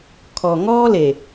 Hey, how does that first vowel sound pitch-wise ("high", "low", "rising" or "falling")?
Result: low